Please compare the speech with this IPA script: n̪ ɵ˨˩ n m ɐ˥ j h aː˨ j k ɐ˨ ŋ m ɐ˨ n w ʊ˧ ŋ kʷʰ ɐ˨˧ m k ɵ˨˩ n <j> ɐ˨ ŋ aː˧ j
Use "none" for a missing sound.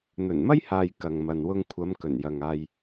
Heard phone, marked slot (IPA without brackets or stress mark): j